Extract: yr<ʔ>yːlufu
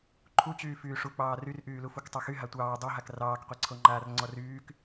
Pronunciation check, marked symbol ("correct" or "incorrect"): correct